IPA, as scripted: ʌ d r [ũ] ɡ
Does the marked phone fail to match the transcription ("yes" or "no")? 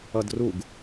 yes